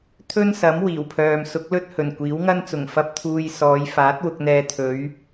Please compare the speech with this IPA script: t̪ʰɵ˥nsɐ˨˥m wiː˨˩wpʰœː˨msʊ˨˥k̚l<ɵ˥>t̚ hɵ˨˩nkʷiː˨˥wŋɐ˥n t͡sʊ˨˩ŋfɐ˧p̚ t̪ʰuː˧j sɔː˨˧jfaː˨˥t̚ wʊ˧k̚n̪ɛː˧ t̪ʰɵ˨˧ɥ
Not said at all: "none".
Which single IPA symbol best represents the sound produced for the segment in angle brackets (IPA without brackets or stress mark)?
ɵ˥